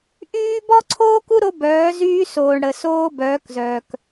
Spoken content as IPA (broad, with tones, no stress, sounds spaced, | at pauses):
ʔ yː˦ b ɔ˦ ǀʰ oː˦ k u˦ ɾ o˦ b œː˨˦ z yː˦ s oː˨ ɳ ɽ ə˨ s oː˦ b œː˨˦ k z œː˨ k